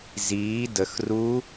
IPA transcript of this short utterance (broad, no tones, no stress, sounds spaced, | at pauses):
z iː d ə x r u